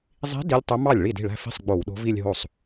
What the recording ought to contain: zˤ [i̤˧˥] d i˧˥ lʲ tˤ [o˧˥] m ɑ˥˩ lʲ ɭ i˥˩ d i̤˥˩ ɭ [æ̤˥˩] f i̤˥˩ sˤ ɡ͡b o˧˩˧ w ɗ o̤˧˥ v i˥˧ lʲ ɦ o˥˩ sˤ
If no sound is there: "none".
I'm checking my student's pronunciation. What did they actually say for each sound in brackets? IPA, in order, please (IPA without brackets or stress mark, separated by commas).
i̤˧˥, ɵ˧˥, æ̤˥˧